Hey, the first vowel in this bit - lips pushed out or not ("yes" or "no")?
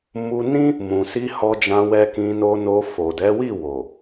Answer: yes